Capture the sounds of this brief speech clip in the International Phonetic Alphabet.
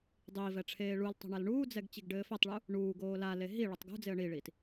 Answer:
dˤiːvɛ ʈ͡ʂʰeːɭultˤo̤ ɳalɳuːd͡zɛɡ t͡ɕiɡɖɘːfɛtˤɭu | ɳuːɡoː lale ɦi ɭɛtˤɡṳd͡zeə̯ ɳiɭiːt

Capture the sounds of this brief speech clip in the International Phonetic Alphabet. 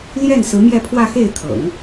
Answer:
ljɛ˥˩n sɹ̩˧˥mjɛ˥˧pʰwä˥˧ xe˥˩ɪ̯t̪ʰɤ̰˨˩˦ŋ

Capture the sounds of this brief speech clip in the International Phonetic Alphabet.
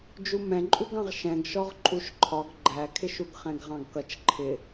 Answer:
d͡ʒumɛ̃ǃʼuɡɑ̃ʁ ʃɛ̃ɡʃɔʁ ǃʼuʃǃʰɒɡ ɡ͡ǃækʰɪʃuɡ χɛ̃ɡʁɑ̃ɡkʌt͡ʃ ǃʰɪ

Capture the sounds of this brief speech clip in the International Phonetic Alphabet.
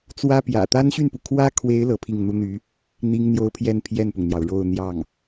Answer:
t͡swä˥pjä̰˨˩ t̪a˥nɕy˥˩npu˩ kʰwä˥kʰwe˧˥ɪ̯ lɤ˧˥pʰi˥˩ŋn̪u˥n̪y˧˥ | n̪i˥ŋn̪jo˥ʊ̯pʰjɛ˥˧n pʰjɛ˥˩npʊ˩ŋn̪jɑ˩ʊ̯ ɻo˥˧ʊ̯ n̪jɑ˥˩ŋ

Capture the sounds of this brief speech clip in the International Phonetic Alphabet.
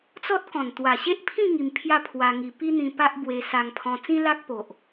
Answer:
t͡sɔ˦t̚kɔ̃˨˩n t̪wa˨˩ɕe˦ʔpʰĩ˥˧ ŋi˧mpʰja˥˧pʰwa˧ŋi˧ pi˦n̪ĩ˧ pa˦ʔbwe˧ sa˧ŋpʰɔ̃˧ t͡sĩ˦la˦k̚po˨ʔ

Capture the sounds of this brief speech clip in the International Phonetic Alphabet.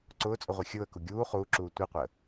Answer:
ǀʊːt͡sʼʊʁʷi xʲʊːə̯ku ɡʲuː χuːǁuː tʷiqʷəː

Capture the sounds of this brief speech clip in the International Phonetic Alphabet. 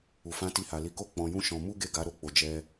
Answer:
u˨fã˨˦ti˧ha˨ li˨˦ko˦˨ k͡pɔ̃˧jũ˦ ʃɔ̃˧ mu˦ɡe˦˨ɡa˨˦ ɾo˦k͡po˧ d͡ʒɛ˦

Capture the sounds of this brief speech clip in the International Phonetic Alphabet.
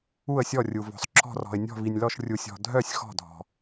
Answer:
u˧˩ə̯sʲɔ˧˩rʲu˩ vɔ̤˩sˤǁʰɔ̤˧˩rɔ̤˩ɪ̯ nʲɔ̤˧˩vi˩nʲlɔ˧˩ʃ rʲu˩sʲɔ̤˩ dʱœ˧˩sʲ xɔ̤˧˩dʱɔ̤˩

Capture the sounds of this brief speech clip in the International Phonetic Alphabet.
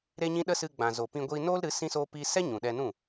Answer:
ɾe˦ɲĩ˦ ɗə˦sɨ˧ ɡ͡bã˨zo˨pĩ˧ ɡʷiː˧noː˦lɾɨ˨˦ sĩ˦soː˦piː˦ sɛ˦ ɲũ˨ɗɛ˧ nũ˦˨

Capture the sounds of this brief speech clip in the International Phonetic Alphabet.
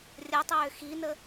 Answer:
rʲətˤʏː xinə

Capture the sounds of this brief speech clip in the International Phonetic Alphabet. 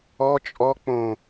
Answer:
ɔ t͡ʃʼɔ k͡põ

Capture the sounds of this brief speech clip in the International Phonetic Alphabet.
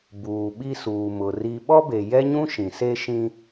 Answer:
buː˨ɓi˦suː˨ mʊ˨ri˦ ɓɔ˦be˨jɛ˦ɲũ˦ ʃĩ˨ se˦ʃĩ˦

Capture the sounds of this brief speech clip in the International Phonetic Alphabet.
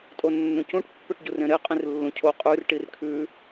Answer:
tʼonːũcũʈ pːøʈɟurẽɾe qʼĩrlːũcʰo qʼʉr ʈirkʰʉ

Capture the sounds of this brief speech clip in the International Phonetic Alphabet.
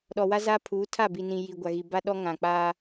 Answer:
ɗɔ˨wa˦za˦ pʰuː˨˦tʰa˦˨ bi˨ nĩ˨ ji˨ɡʷa˨ɣi˨ ba˦ɗɔ˦ ŋã˨k͡paː˦

